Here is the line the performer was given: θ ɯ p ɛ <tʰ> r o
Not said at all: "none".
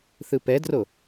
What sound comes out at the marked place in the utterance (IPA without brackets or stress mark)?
d